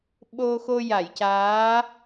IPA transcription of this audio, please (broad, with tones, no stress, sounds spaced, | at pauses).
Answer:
ɓ o˧ x o˧ j a˨˩˨ j c aː˧˥